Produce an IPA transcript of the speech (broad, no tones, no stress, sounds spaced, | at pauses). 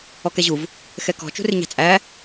ɔ k ɛ ʑ u v | x ɛ k ɔ̤ t͡ʃ ṳ r ɪ ɲ ɑ̤ t͡sʼ æ